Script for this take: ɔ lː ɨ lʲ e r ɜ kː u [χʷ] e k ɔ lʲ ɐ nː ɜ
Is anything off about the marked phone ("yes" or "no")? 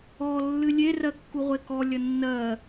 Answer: yes